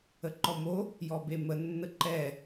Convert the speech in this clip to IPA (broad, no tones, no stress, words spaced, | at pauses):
əǃɔmo | jɔbemə nːəǃɛ